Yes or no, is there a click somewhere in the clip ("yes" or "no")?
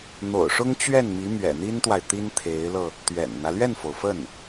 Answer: no